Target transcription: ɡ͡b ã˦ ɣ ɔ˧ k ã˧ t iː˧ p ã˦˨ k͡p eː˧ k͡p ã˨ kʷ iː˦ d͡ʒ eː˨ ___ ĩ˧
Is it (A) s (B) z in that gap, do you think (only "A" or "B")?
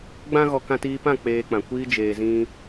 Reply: B